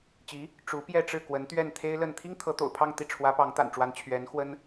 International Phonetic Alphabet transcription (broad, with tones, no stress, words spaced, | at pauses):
t͡ɕi˧˥ | ʈ͡ʂu˧˥ pjɛ˥˧ʈ͡ʂɻ̩˥˩kwə˧˥n t̪ɥɛ˥˩nt̪ʰe˥ɪ̯lə˥˩n t̪ʰi˥ŋt̪ʰɤ˧˥t̪o̰˨˩ʊ̯ pʰɑ˥˧ŋt̪i˥˩ ʈ͡ʂʰwä˧˥pɑ˧˥ŋ t̪a̰˨˩n ʈ͡ʂwa˧˥n t͡ɕʰɥɛ˧˥n xwə˥n